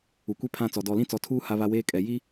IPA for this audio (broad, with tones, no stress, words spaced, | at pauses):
u˨kʷi˦pʰã˦˨t͡sɔ˨ dɔ˨lĩ˦t͡sɔ˨tʰuː˦ ha˦βa˦weː˦kʼɛ˨ ji˦